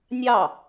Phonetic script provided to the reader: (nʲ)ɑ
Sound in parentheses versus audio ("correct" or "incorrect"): correct